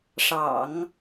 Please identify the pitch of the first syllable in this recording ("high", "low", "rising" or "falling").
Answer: low